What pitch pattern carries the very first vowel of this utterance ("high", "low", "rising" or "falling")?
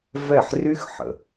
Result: falling